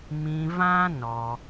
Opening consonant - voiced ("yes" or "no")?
yes